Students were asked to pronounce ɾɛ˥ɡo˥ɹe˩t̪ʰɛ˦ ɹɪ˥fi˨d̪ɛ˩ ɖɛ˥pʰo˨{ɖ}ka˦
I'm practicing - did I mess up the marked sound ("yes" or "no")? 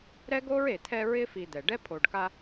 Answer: no